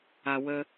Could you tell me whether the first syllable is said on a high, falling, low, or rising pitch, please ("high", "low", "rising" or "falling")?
low